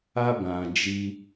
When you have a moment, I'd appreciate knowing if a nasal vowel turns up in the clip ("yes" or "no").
yes